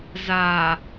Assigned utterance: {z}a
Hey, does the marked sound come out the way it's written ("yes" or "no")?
yes